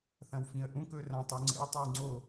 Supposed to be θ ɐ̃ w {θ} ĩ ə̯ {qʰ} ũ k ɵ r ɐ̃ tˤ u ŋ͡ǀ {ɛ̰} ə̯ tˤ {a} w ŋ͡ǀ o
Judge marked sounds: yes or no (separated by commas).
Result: no, no, no, yes